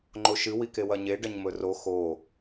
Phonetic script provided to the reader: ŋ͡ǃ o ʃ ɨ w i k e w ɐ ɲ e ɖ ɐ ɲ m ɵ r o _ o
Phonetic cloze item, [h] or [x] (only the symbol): x